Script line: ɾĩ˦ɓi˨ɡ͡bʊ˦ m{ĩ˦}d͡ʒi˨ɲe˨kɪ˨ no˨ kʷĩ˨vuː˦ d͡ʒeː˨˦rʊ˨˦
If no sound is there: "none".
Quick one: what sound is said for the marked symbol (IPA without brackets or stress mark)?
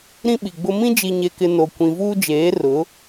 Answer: ĩ˦